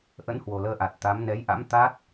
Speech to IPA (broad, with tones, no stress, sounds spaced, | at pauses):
ʔ ə̰˧˥ n h w o˨˩ l əː˧ ʔ a˨˩ t̚ t̪ a˨˦ m n ɛ˨˦ j ʔ a̰˧˥ m t̪ a˦˥ t̚